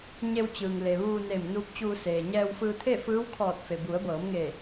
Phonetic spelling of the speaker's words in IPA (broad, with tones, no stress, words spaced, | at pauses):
ɲe˧wt͡ɕɯː˩ŋ le˩ ʋuː˧neː˧˩m nuː˧˥p̚t͡ɕuː˧seː˩ ɲɛː˧wfɯː˧t̪ʰe˥˨ fɯː˧˥wkʰɔː˧˩t̚ fe˩bu˩˧ə̯bɤː˩˧mŋe˧˩